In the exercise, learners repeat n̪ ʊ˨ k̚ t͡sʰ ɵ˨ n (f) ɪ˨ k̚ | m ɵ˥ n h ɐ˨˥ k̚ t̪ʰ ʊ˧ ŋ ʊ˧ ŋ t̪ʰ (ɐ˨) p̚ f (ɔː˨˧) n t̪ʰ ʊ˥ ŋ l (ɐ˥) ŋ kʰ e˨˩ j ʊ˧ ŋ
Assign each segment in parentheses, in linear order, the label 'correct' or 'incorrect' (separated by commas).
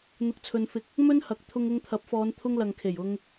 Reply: correct, incorrect, correct, incorrect